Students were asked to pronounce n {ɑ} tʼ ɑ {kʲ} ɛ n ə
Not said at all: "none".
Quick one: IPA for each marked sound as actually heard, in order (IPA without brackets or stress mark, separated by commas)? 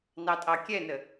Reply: ɑ, kʲ